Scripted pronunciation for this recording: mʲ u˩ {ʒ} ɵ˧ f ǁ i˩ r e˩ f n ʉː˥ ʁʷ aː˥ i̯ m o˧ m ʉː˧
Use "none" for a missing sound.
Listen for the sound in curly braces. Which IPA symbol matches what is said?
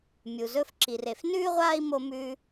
z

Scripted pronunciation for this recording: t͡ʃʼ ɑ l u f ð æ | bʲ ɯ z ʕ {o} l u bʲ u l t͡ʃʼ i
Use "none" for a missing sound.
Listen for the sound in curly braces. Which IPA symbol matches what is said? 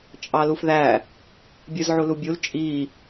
u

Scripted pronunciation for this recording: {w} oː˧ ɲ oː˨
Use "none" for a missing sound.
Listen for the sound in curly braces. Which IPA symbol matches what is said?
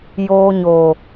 j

